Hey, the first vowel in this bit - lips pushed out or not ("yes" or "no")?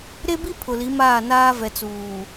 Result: no